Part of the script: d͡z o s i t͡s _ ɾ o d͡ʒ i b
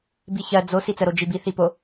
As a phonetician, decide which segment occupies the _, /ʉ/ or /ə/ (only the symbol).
ə